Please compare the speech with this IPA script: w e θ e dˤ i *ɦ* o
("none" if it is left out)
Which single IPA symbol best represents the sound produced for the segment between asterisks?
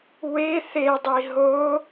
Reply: ɦ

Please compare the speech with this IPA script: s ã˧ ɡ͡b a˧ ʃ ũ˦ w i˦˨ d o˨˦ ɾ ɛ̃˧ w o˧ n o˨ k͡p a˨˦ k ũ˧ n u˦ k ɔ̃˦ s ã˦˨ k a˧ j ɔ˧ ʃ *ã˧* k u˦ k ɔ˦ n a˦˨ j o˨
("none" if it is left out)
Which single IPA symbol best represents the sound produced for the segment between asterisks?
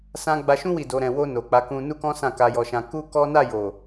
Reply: ã˧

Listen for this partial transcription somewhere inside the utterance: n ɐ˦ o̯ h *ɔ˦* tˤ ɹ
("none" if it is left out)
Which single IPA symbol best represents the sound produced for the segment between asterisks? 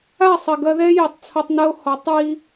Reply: ɔ˨˦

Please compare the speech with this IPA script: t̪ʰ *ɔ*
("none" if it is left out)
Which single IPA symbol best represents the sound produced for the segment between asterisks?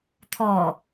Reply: ɔ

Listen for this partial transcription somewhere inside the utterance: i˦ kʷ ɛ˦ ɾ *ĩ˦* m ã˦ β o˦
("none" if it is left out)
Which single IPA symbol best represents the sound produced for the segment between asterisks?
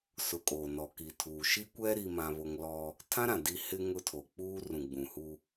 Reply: i˦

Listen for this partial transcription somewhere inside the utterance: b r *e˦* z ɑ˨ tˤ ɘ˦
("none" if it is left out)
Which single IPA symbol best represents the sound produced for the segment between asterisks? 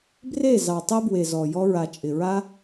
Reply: e˦˨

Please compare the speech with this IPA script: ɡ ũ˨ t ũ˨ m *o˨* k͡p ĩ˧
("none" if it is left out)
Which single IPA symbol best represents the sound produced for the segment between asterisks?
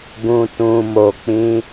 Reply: o˨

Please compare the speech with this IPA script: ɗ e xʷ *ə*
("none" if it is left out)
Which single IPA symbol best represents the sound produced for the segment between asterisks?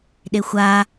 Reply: a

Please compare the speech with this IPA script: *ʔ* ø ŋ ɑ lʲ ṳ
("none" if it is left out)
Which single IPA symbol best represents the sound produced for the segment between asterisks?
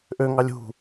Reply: ʔ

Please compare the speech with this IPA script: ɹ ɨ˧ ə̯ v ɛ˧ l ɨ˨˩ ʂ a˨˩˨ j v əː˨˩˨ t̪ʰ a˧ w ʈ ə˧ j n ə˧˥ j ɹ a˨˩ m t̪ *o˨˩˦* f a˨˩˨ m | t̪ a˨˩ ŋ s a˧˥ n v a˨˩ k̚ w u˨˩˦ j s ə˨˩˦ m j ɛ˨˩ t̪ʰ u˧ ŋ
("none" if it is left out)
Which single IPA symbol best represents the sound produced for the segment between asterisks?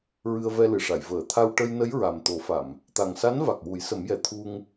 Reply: o˨˩˦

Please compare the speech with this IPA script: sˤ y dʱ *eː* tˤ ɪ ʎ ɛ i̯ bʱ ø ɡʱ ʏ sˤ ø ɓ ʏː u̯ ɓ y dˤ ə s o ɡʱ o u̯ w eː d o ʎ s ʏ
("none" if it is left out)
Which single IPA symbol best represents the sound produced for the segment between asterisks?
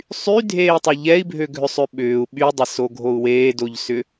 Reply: eː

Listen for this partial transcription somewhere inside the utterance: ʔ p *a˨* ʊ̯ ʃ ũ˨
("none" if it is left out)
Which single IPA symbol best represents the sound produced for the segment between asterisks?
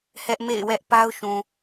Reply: a˦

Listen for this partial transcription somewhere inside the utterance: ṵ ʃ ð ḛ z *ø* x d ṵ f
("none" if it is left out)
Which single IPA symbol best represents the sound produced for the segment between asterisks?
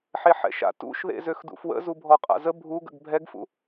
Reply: ø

